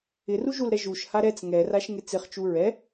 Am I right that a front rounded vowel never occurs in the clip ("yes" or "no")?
yes